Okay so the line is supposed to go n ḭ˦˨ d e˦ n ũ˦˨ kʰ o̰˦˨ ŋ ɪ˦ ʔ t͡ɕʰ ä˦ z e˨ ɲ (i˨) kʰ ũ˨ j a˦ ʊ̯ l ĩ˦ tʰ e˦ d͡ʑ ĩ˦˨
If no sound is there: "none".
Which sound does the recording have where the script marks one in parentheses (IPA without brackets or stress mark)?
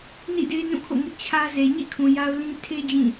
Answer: ḭ˦˨